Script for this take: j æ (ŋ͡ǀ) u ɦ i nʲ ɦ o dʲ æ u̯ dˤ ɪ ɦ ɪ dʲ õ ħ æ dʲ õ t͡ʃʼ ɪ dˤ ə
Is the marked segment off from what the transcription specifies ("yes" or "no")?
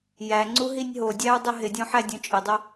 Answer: no